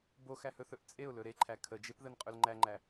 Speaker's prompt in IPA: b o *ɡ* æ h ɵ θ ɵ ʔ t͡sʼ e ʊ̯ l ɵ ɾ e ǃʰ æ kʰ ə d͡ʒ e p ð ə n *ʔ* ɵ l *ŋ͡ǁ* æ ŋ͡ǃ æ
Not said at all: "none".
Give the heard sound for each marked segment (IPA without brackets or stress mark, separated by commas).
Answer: x, qʼ, ŋ͡ǃ